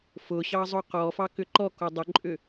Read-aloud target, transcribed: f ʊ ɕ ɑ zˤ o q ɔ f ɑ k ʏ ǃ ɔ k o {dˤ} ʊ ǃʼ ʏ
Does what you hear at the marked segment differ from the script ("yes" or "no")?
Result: no